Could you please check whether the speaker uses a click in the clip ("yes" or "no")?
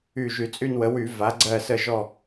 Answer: yes